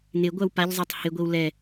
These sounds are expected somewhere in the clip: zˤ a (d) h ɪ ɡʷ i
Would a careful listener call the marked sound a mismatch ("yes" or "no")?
yes